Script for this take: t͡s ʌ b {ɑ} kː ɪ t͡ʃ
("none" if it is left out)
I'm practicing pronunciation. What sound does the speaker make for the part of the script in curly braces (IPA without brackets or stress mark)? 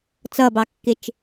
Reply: ɑ